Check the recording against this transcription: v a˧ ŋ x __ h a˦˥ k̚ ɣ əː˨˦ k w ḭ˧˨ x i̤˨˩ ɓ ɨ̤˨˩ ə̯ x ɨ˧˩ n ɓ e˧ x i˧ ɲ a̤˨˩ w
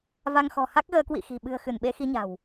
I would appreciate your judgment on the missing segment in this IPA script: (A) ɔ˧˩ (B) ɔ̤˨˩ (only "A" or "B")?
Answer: B